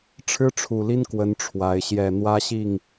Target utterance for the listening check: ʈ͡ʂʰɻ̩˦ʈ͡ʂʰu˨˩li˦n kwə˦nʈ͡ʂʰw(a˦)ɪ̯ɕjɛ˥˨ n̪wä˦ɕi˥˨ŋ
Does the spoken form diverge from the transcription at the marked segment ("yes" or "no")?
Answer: yes